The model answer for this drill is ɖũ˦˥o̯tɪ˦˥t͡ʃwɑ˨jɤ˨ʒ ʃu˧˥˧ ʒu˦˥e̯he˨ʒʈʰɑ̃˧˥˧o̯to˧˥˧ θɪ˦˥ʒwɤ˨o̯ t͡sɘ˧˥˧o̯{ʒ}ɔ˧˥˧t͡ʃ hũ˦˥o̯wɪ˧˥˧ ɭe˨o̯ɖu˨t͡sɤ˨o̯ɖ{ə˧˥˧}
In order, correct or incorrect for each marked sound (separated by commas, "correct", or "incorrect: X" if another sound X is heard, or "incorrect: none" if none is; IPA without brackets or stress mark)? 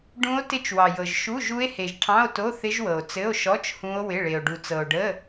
incorrect: ʃ, correct